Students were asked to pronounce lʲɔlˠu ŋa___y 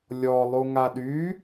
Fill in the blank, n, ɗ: ɗ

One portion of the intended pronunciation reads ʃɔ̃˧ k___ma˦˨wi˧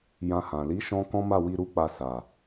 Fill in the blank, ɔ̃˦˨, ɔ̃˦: ɔ̃˦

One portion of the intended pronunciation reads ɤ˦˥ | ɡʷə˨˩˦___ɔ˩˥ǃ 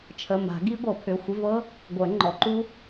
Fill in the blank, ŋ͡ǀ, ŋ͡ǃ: ŋ͡ǃ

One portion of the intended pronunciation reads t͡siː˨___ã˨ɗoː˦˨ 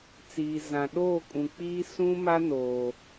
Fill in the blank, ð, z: z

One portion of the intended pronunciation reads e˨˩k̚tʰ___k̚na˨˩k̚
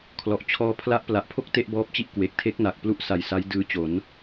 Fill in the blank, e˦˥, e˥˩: e˦˥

